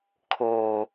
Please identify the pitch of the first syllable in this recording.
low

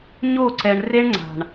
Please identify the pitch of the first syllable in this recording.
falling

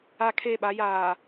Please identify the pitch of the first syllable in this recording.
high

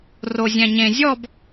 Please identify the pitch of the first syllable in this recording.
low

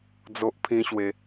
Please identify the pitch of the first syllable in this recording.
high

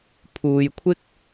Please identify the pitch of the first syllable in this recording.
low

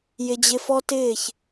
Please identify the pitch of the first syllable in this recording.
high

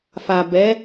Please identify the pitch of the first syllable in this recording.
low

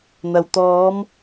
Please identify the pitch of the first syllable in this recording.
low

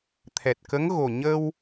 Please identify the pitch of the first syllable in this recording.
low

